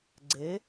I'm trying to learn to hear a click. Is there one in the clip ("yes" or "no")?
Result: yes